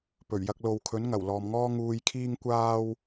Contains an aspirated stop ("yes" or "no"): yes